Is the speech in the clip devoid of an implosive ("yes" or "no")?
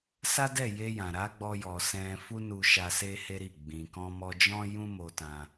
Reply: yes